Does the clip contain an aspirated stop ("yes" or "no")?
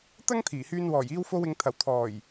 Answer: yes